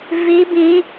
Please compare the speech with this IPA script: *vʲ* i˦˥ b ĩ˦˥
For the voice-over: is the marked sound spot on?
no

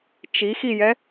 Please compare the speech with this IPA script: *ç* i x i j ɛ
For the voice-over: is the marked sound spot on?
no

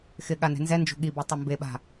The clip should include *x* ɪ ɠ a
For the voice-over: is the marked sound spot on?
yes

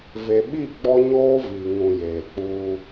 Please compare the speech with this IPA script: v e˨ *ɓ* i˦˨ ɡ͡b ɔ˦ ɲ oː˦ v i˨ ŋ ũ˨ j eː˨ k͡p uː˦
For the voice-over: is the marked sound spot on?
yes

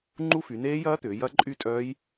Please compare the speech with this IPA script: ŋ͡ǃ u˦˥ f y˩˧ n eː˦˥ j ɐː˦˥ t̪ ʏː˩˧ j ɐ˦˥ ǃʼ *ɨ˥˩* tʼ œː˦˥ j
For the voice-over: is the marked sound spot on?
no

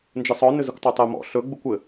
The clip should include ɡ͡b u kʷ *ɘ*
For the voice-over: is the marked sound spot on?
yes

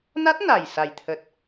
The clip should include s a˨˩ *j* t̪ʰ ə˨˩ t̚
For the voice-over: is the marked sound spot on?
yes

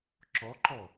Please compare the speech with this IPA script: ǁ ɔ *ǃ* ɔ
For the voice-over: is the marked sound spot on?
yes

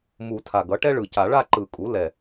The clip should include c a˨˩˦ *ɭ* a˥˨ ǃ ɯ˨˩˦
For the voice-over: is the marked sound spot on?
yes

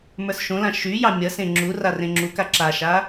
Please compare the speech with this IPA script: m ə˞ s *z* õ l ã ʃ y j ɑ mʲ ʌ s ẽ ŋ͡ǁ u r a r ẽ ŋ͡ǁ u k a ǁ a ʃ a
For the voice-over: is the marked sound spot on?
no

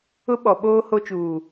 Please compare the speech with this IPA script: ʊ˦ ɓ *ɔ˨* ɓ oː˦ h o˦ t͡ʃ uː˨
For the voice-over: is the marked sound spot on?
yes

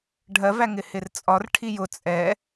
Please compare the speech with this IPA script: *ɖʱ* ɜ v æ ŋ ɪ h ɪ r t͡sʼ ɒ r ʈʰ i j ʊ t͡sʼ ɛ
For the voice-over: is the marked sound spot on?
yes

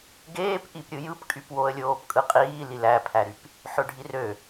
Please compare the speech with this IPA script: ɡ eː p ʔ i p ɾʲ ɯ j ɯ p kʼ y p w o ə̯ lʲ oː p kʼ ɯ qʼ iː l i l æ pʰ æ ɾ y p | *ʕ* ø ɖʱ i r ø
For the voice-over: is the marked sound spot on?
no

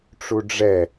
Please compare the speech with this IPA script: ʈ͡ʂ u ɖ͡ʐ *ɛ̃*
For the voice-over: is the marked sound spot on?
no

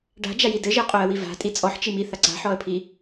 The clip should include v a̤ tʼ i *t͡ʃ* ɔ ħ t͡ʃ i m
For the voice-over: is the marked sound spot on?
no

